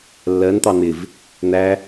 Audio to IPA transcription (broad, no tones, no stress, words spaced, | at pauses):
lːɜnt̪ɑ n̪ɪv | n̪æ